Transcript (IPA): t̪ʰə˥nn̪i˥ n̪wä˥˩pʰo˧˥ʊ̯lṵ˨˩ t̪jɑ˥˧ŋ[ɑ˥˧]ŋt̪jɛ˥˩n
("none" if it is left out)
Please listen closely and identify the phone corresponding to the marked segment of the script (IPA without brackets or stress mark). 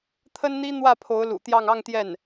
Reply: ɑ˥˧